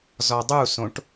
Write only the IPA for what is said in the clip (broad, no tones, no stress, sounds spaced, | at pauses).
z ɔ dˤ u s õ ʈ